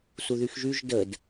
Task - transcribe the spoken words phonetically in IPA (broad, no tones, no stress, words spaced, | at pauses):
suðyxʒyʒ dəd